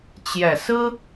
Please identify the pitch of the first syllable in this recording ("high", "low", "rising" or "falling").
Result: low